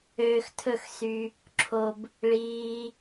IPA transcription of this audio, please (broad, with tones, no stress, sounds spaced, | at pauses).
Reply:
øː˧ x tʰ ɵ˦˨ x s y˧ | ǁʰ o˨ b | ɭ iː˧